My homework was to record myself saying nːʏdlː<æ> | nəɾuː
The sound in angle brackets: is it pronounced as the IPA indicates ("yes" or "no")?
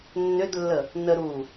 no